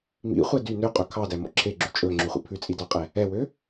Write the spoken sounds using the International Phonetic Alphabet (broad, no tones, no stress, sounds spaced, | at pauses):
m ḭ χʷ ɛ d y n ø qʼ ɵ kʰ ɑ d æ m ɔ̰ ǁʰ e ɡ͡ǁ y t͡ʃʼ ɵ ŋ͡ǁ ʉ χʷ ḭ pʰ ʉ t͡sʼ i d ɑ qʼ ɛ | ɛ w ø